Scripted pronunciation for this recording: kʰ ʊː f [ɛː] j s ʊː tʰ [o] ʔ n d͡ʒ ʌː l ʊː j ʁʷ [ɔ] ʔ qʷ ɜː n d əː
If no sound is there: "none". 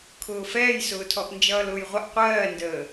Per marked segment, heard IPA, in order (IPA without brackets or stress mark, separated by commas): ɛː, ɔ, ʌ